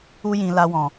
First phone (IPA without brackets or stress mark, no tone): u